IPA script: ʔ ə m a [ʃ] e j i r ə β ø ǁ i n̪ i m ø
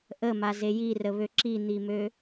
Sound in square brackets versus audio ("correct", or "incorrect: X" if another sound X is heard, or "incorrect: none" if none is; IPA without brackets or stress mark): incorrect: z